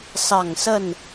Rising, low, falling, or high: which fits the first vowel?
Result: low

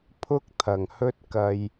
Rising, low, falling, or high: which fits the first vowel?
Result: high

